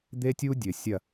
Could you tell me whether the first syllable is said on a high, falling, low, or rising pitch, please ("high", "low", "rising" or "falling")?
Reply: high